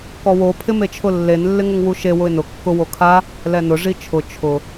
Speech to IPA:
kɔwo pʰɪmet͡ʃʰʊlːen lːɪŋʊŋwuʃe wʊɪ̯nʊ kːʊ wokʰa | lɛnʊ ʐit͡ʃʰʊ t͡ʃʰʊ

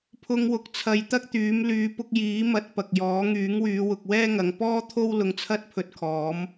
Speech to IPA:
pʰʊ˧ŋwʊ˨k̚t͡sʰɐ˨˧j t̪ɐ˥k̚t̪yː˨˥m lyː˨˧pʊ˧k̚jiː˨˥ mɐ˧t̚pɐ˨k̚jɔː˨˥ ŋyː˨˥ŋwyː˨˧ wʊ˨k̚wɛː˥ŋɐ˨˧ŋ pɔː˥t̪ʰo˥w lʊ˧ŋt͡sʰɐ˥t̚pʰɵ˧t̚kʰɔː˨˥m

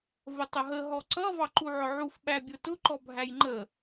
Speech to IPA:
vətˤʊɦə ɦɔǀʌ vɑǃuʕʊʕuf ɓæbʲʊtʊ ǃɔbʱæjŋ͡ǃə

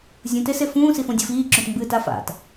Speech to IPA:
zʲũt esefũː sifõdʲufiː ǁõtmbɨːta fa̰t

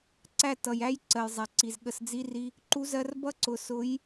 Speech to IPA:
ǀæ˦˨ tʌ˨jæ˦j ǀɜ˨jzˤæ˨ǀi˨z ɠə˦s d͡zi˦ri˦ | ǃu˦zɜ˦r bʌ˦ǀʊ˨ sʊ˨˦j

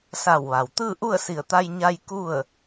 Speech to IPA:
sa˧˩wʋa˩w t̪ɯː˥˨ʔu˥˨ə̯si˧˩ə̯ t̪a˧jɲa˧j ku˥˨ə̯

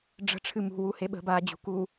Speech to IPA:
ɖ͡ʐə̤ʈ͡ʂʰɨ mṳwuhe ɓə̤baːd͡ʑṳkuː

